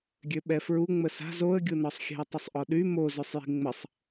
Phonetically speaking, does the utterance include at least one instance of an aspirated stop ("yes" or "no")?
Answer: no